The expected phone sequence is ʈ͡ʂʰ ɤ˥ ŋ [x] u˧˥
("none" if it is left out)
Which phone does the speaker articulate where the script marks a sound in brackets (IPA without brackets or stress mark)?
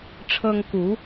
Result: k